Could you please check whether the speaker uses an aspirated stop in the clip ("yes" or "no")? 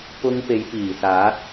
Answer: no